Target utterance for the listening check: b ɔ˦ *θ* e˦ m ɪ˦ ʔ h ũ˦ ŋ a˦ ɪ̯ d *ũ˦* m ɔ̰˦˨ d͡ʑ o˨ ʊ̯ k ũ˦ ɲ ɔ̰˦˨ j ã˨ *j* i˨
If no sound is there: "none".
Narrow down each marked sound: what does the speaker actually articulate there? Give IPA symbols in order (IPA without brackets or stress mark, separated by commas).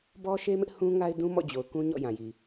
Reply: ʃ, ũ˦, j